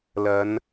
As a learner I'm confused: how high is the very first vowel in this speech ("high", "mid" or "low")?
low